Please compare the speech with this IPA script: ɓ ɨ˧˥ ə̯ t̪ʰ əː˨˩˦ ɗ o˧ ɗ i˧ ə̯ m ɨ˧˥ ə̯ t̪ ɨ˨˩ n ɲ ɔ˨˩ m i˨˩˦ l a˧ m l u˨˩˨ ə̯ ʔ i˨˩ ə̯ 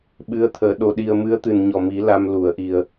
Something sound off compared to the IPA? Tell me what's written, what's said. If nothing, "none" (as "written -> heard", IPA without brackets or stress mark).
none